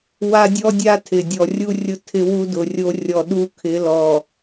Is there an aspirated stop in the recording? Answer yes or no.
yes